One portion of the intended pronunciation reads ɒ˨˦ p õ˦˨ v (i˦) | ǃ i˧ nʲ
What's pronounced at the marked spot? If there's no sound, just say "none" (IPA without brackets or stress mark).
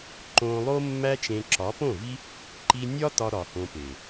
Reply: i˦